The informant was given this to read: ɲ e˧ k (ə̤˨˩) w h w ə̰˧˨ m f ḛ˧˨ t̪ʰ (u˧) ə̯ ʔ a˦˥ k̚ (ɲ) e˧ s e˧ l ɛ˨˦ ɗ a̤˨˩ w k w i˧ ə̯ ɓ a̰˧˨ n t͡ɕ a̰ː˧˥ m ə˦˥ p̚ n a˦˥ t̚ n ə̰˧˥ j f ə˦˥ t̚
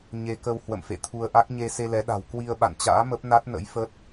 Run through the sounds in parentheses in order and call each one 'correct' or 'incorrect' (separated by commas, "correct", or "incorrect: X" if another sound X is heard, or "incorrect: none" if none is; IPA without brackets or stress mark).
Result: incorrect: ə˧, correct, correct